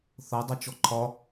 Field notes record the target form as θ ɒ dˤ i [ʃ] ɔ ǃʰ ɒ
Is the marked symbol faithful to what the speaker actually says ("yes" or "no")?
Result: no